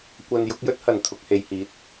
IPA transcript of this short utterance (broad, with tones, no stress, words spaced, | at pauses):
kʷɐ˧n jʊ˨˥k̚jɵ˥t̚hɐ˨˩n t̪ʰʊ˧k̚he˨jhiː˨˥t̚